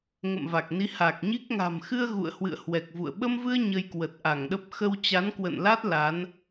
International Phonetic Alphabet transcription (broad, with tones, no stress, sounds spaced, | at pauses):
ŋ ə̰˧˨ m v a˨˩ k̚ n i˨˦ h a˨˩ k̚ ɲ i˦˥ k̚ ŋ a̤˨˩ m x ɨ˧ ə̯ ɣ ṵ˧˨ ə̯ h w ɨ̰˧˨ ə̯ h w ɛ˨˩ k̚ v ṵ˧˨ ə̯ ɓ ə˧ m v ɨ˧ ə̯ ɲ ə˧ j k w ə˨˩ t̚ ʔ a˧˩ ŋ ɗ ə˦˥ p̚ x ə˧ w t͡ɕ a˨˦ n k w ə̰˧˨ n l a˦˥ t̚ l a˨˦ n